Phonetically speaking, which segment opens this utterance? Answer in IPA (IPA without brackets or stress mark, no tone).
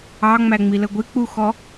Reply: ɑ